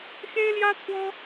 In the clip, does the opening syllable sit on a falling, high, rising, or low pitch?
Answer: high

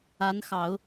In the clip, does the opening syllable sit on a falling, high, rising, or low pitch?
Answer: rising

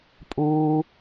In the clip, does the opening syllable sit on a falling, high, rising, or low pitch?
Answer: high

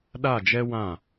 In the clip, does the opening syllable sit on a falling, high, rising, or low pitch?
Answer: falling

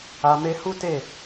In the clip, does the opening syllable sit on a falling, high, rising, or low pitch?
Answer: low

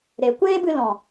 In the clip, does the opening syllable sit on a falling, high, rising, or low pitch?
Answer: low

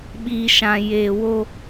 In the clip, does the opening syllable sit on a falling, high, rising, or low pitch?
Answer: low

